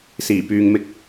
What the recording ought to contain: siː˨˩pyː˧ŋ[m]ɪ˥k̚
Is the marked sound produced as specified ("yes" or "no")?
yes